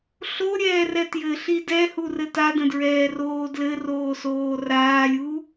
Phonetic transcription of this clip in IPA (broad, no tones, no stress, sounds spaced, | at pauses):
ɬ o ɾʲ ɛː r ɛ t j ɘ ɬ i d ɛ h u r ɘ t a d ə̃ d ɹ ɛː r oː d l ɘ r oː s oː r aː lʲ u